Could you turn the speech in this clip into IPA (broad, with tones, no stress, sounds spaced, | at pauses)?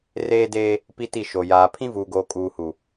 r eː˦ d eː˦ | p i˦ t i˦˨ ʃ o˨ j aː˨ pʰ ĩ˦ v uː˨ ɡ oː˨ kʼ uː˨ h u˨